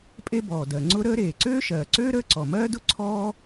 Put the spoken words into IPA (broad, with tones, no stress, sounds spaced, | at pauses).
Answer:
pʼ e˥ b ɔː˩ d ɜ˩ ŋ͡ǀ ʊ˥ ɾ əː˥ ɾ eː˩ ǀ øː˥ ʃ ɜː˩ ǀ øː˥ ɾ əː˥ ǀ ɔ˩ m ɜː˥ d ʊ˥ ǀʰ ɔː˥